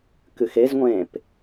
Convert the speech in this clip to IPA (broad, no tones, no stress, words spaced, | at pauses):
kɨxezŋʷẽːp